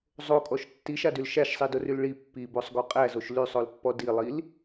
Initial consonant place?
alveolar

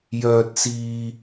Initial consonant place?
palatal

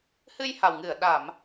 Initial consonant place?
glottal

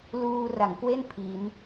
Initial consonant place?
alveolar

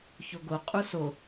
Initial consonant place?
palatal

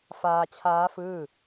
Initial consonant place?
labial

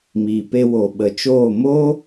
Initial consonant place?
labial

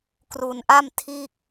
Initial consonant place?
velar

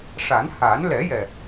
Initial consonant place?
retroflex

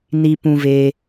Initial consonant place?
alveolar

